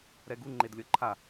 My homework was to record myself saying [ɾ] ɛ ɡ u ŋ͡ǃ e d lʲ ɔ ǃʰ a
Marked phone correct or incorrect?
correct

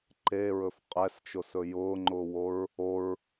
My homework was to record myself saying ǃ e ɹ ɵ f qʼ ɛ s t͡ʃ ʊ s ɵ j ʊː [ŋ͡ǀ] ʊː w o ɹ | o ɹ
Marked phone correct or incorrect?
incorrect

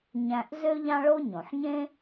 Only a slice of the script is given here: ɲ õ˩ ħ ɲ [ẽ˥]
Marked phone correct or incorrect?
correct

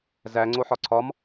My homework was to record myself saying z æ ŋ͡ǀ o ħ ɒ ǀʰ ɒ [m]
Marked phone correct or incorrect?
correct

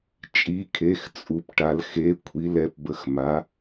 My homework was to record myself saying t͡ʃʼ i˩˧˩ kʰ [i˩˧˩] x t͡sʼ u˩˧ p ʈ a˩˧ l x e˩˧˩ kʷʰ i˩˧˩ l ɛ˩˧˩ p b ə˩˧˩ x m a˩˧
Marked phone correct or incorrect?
incorrect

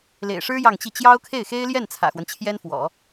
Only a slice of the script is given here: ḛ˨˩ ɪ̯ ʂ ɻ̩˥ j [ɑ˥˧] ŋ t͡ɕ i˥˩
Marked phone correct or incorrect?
correct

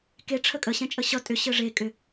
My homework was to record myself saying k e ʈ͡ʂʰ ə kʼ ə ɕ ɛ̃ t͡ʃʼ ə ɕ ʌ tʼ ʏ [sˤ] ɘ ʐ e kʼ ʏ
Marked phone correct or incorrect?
incorrect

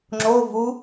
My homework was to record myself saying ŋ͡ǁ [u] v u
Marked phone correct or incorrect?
incorrect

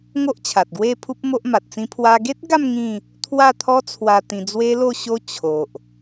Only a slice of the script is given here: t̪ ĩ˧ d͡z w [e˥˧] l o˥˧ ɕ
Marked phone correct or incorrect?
incorrect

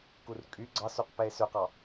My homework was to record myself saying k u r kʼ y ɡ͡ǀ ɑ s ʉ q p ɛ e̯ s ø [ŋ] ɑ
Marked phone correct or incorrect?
incorrect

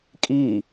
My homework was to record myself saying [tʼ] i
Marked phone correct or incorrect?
incorrect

